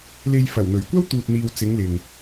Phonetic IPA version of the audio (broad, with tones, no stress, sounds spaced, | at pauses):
l e˧ j f ɐ˨˩ w n̪ ɵ˨˩ ɥ kʷ ɐ˥ w t̪ uː˨ t̚ n̪ iː˨ w t͡s ɪ˨˧ ŋ l ɪ˨ ŋ